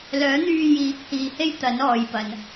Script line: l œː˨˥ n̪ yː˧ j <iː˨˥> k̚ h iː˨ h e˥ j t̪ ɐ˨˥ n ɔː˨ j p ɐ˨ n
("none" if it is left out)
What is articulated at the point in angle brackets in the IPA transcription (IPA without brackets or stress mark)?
iː˨˥